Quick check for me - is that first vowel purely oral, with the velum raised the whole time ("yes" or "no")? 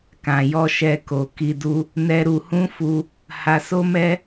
no